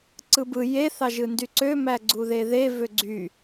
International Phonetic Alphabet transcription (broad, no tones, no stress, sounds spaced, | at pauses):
ǀ ɯ b ɯ j e θ ɑ ʒ ɯ n d y ǀ ø m æ ɡ͡ǀ u ð e ð e v ø ɡ͡ǀ y